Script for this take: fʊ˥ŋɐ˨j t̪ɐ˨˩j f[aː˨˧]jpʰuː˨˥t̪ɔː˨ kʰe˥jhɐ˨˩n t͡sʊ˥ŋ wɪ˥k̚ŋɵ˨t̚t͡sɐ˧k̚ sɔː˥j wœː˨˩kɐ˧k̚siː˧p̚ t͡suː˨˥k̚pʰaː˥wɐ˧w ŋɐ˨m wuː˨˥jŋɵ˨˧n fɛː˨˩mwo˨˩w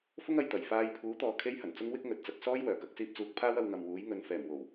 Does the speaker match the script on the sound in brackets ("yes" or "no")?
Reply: no